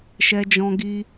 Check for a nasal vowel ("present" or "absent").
present